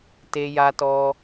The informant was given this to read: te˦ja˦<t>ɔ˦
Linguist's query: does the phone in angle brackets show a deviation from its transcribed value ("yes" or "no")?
no